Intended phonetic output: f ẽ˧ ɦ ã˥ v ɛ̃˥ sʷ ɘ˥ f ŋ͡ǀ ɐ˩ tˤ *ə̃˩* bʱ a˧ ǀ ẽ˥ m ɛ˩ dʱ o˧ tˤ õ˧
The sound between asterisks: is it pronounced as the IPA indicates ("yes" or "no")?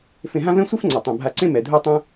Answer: no